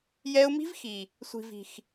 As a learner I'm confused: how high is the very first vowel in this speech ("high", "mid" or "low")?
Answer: mid